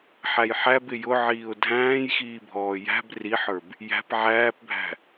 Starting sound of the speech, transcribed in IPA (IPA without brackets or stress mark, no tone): ħ